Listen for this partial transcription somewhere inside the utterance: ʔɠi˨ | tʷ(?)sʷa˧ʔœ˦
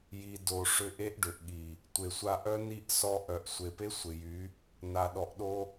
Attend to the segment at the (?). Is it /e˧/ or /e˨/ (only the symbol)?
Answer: e˨